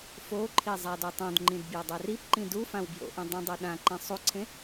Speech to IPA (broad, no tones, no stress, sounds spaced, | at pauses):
f o ǃʰ i zˤ a d o tˤ õ d ŋ͡ǃ ĩ d b j e dˤ ɛ r i p ǃ ĩ d u f ã w b j o̰ ʔ ĩ dˤ ĩ dˤ u ɗ ã ǃ ẽ sˤ u ǀʰ ẽ